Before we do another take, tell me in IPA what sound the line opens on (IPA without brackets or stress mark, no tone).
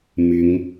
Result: m